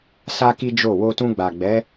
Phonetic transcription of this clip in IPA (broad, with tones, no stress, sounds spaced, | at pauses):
s a˦ k i˦ d͡ʒ o˦˨ w o˧ t ũ˧ ɡ͡b a˨ ɡ͡b ɛ˨˦